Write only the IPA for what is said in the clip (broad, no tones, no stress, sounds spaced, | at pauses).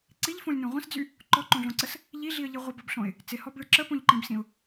ǀ i ʎ f õ lʲ n õ ʁʷ ə̃ s d͡z y | ǃ ɔ ǃ õ ɮ õ ǀ ə s | ʎ i ɮ i ə̯ ʎ i ʁʷ ə b ʌ b ɬ õ ɪ̯ | t͡s ɪ h ɔ b ɭ ɪ ǁ ə p õ ʎ ǃ ĩ b s ĩ ʊ̯